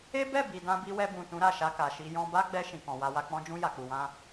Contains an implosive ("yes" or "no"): no